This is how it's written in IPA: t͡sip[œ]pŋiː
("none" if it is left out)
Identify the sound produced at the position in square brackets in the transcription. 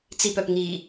œ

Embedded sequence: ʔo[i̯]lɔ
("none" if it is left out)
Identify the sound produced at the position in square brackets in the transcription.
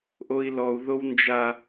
i̯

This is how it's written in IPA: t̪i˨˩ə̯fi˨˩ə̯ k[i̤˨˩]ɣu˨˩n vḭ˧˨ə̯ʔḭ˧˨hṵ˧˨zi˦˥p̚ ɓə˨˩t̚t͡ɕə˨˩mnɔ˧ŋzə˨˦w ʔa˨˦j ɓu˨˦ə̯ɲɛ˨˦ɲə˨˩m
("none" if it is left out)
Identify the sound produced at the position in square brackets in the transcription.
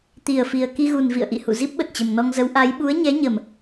i˧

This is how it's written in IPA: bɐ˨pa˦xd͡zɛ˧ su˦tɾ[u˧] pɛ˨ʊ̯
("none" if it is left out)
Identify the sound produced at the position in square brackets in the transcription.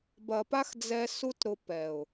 ʊ˧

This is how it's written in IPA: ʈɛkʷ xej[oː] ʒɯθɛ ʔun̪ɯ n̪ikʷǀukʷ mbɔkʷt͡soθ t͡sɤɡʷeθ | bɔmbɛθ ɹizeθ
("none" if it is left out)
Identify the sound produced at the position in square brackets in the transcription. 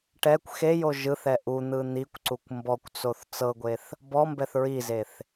o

